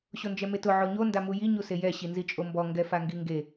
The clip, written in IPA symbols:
ɕ o n d͡ʒ ɛ m e t ʊ ʕ o ɲ o n d a m u j i ɲ u s e j ɛ ɕ i n z i t͡ʃʼ o m b ɔ ŋ ɡ ɛ f a ŋ ɡ i ŋ ɡ e

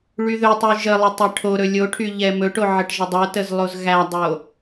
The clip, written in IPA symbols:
ɭ y ð ɵ tˤ y ʒ ə lˠ ə tˤ ɛ ʈʰ o ɾ ɵ lʲ o ʈʰ y ʎ ɛ m ɵ ʈ o ʕ ə ʈ ʒ ə dˤ o t ə z lˠ o z ɣ æ dˤ o

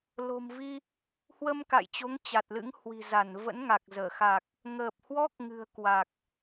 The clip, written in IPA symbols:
l o̤˨˩ m v i˧ | h w ə˧ m k a̰˧˨ j t͡ɕ o˨˦ ŋ t͡ɕ a˨˩ t̚ l ɨ̰˧˥ ŋ h w i̤˨˩ z a˧˩ n v ə̰˧˥ n ŋ a˨˩ k̚ z əː˧˩ x a˨˩ k̚ | ŋ əː˨˩ p̚ h w ɔ˦˥ k̚ ŋ ɨ̤˨˩ ə̯ k w a˨˩ k̚

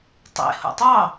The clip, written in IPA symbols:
tˤ ḛ h o̰ tˤ ɑ

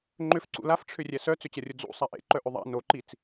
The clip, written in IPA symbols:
ŋ͡ǃ ʏ f ǀ ṵ l a f ʈ͡ʂʰ ʏ rʲ ɛ s œ t͡s ʏ t͡ɕ ɐ rʲ ʊ d͡z ṵ sˤ a ʔ ḛ ǃ œ ʔ ʏ ðˤ a̰ n o ǃ i t͡s

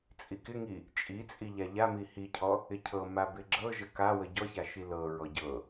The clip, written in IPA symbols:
t͡sʼ i k ɪ ŋ i | t͡ʃʼ i t͡sʼ i ʎ a ʎ a m i h i cʰ ɔ | ɪ cʰ ɤ m a b ɪ ɡ͡ǁ ɤ ʒ ə k a w ə ɟ ɔ ç a ʃ i l ɤ ɹ ɔ ɟ ɤ

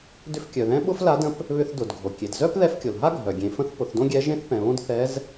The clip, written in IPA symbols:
d ʏ˧˥ f kʲ œ˩ ð ɛ̃˧˥ ɓ ʊ˥ f l a˧˥ d ə̃˧˥ p | β ʏ˧ θ d ʊ˩ d ɡʱ o˩ kʲ e˩ d z œ˥ p ð ɛ˧˥ f kʲ o˩ l ɦ a˥ ɡʱ œ˩ ɡʲ ẽ˩˧ f ə̃˧˥ θ p ʊ˩˧ θ d õ˥ ɡʲ ɛ˧˥ ʒ ẽ˥ θ p ɛ̃˩ β õ˥ d θ ɛ˧˥ z

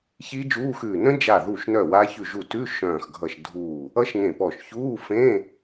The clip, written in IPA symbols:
ç iː˦˥ d͡ʒ uː˧˥˧ x ʉː˧˩ n ə̃˦˥ d͡ʒ a˧˩ ð u˧˩ ʃ n œ˧˩ w a˦˥ ç ʉ˧˩ ʒ u˧˩ t ʉ˧˥˧ ʃ œ̃ː˧˩ x ɡʱ ʌ˧˩ ʃ dʱ uː˧˩ | ʌ˦˥ ʃ ŋ ẽ˧˩ p ɔ˧˩ ʃ ç uː˧˥˧ f ẽ˧˥˧

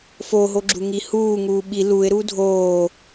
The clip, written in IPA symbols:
f o ɦ o ɡ͡ǁ u ŋ i h uː ŋ uː ɓ i l u ɪ̯ ɾ u dʱ oː

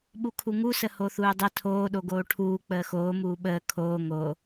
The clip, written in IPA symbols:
ɓ u kʰ u ŋ u s ə h o θ uː dˤ ə tʰ oː ɗ o ɡ oː ʈʰ uː k͡p əː x oː m uː ɓ əː kʰ oː ŋ o

